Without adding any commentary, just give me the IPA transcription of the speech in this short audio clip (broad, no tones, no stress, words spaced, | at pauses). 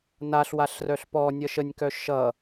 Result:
naɬwaɬrœɬ pɔnʲʌʃ ənʲkœ ʃʌ